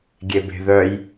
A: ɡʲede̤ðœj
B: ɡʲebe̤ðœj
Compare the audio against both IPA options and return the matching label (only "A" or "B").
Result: B